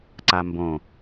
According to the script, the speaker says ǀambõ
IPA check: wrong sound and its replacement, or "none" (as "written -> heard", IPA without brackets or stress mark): none